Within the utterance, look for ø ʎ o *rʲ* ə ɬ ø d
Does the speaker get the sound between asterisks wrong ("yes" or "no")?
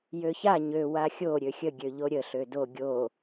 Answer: yes